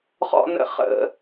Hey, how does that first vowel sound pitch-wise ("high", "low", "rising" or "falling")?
high